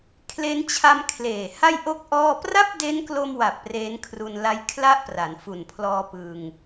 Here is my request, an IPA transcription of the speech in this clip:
kʰle˦˥nt͡ɕʰa˧m kʰleː˨˩ha˥˩j ʔo˦˥k̚ ʔɔː˥˩ pra˥˩p̚ de˦˥nklo˧mwa˨˩p̚ re˦˥n kʰru˧n la˦˥jkʰla˥˩ʔ pra˩˦nfu˨˩npʰlɔː˧ pɯː˧ŋ

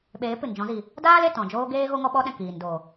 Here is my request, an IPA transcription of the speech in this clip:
ɓeː˨˦pɨ˨nd͡ʒɔ̃˨˦zi˨ | daː˦l e˨tɔ̃˨d͡ʒoː˦ ɡeː˦ ɣo˦ŋɔ˦ɓɔ˦ɗɛ̃˨ kiː˨n do˨

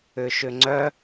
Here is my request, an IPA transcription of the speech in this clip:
ʏʃʏŋ͡ǀœ

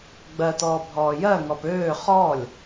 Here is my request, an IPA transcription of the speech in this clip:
ɡ͡bɜtɔː bʱɔːjɜŋɔp øː χɔlʲ

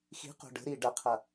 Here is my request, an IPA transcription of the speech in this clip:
xi̤qo̤ ɖə̤ɾiː ɖɐqʰɐ

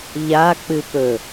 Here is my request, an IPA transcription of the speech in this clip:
ʎa k͡pɨpɵ

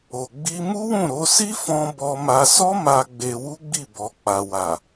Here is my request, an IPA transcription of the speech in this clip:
o˨ɡ͡bi˧mu˦wũ˦˨ ɾo˧si˦fɔ̃˧ bɔ˧ma˧ sɔ˦ma˧ ɡ͡be˧wu˦ɡ͡bi˦˨ bɔ˨k͡pa˨wa˨

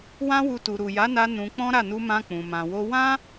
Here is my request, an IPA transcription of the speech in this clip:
wã˦wu˧ tu˨ɾu˨ja˨˦na˧ nũ˧ k͡pɔ̃˦ɾa˦˨ nu˧mã˧k͡pũ˨ mã˨wo˧ wã˦

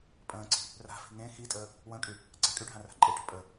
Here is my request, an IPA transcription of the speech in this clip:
pʼə̃ːǀi̤ | ra̤fi̤ ŋẽ xitʼəː | wə̃ːkʼy | ɡ͡ǀakʼyɖʱã ra̤ǃʼeʈə̤ pʼə

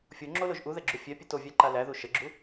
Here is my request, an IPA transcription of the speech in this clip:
fʲo ŋ͡ǁoloʒ ʔuðɛɡ͡ǁu fʲɛpʲet ovʲæǃa læðu ʃəɡ͡ǁu

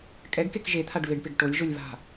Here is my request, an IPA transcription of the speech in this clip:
kʼɛɡkek ʒet̪ʰaɖ βɪɖpɪɡ ʈolʲʒolʲ βa̤

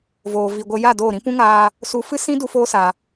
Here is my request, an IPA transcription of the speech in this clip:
voː˨vi˨ɡʷə˧ja˦˨ doː˦˨ɾĩ˦ pũ˦ŋaː˧ | su˧ fɨ˦sĩ˦ du˦foː˦sa˨

